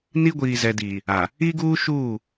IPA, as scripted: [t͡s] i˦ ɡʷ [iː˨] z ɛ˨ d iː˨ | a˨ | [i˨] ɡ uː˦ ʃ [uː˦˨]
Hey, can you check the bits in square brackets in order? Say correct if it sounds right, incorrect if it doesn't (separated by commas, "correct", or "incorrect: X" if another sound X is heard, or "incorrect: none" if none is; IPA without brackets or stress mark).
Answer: incorrect: n, correct, incorrect: i˦, correct